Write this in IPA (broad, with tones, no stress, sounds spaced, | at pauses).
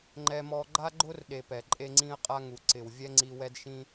ŋ͡ǃ ɛ˧ m ɔ˧ ɡ͡ǃ a˥ ɡ͡ǃ ʊ˥ r ɗ e˧ p ɛ˩ ǃʼ e˥ ŋ͡ǀ ĩ˥ ə̯ qʼ a˥ ŋ u˩ ǀ ɪ˩ w vʲ ɛ˥ ŋ͡ǀ i˧ w ɛ˥ d ʃ ĩ˥